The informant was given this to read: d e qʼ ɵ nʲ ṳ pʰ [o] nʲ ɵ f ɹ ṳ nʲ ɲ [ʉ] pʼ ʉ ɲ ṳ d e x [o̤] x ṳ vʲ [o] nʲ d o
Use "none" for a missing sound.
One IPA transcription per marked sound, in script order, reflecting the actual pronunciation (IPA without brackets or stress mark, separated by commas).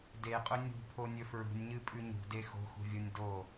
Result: o, ɨ, o̤, o